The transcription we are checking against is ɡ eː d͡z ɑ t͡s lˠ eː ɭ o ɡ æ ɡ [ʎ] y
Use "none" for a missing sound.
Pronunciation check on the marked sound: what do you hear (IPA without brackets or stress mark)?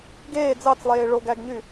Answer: ɲ